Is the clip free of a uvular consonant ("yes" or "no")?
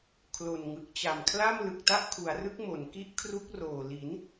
yes